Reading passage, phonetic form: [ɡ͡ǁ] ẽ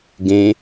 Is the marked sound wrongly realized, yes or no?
yes